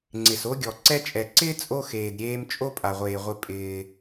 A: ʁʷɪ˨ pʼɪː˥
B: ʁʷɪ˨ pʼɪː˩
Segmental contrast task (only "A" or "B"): B